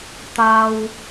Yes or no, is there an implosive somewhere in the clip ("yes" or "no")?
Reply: no